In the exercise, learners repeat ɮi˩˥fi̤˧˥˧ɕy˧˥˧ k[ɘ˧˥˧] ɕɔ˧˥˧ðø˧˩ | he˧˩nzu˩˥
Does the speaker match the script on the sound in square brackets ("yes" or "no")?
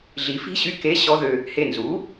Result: no